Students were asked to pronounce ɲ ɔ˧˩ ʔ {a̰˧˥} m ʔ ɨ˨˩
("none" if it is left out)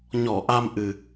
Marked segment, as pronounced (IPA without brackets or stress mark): a˧